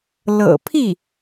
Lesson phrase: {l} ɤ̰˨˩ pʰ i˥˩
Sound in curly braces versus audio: correct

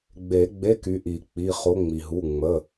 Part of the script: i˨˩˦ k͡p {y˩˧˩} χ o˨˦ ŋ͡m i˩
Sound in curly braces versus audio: incorrect: i˩˧˩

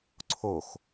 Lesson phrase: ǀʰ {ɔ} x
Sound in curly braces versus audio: incorrect: o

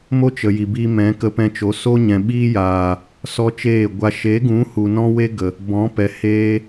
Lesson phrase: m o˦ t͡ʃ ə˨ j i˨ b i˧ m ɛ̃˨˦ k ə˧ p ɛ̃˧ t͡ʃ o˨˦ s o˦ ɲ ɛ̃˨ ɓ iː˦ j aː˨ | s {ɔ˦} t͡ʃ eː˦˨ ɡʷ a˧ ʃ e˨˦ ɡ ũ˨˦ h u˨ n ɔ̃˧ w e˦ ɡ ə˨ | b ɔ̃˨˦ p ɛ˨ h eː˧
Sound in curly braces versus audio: correct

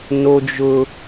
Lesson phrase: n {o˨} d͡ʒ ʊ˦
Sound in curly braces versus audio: incorrect: o˦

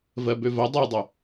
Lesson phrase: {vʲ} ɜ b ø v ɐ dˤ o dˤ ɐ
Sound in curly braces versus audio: incorrect: v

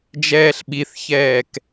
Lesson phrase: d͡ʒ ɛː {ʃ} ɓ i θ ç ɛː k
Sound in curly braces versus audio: incorrect: ɬ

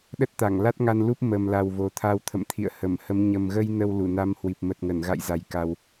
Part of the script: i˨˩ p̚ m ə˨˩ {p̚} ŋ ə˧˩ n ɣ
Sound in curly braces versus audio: incorrect: t̚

